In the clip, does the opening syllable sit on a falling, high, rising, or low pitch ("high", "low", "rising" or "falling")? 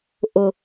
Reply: low